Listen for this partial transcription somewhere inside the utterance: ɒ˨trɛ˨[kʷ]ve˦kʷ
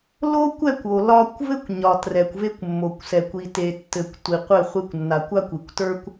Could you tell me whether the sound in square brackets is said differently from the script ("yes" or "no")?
no